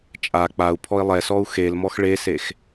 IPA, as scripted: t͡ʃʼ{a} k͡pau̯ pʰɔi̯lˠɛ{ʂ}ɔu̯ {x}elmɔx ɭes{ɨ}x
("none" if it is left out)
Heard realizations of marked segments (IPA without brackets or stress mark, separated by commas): a, s, x, e